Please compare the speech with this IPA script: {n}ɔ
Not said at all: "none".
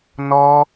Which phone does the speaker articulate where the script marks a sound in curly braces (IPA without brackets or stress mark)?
n